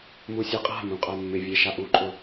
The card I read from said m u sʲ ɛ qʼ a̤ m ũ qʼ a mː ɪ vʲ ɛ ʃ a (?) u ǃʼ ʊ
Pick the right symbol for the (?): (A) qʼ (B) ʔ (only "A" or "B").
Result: B